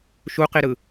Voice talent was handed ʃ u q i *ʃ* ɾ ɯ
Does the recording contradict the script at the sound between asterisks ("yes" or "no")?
yes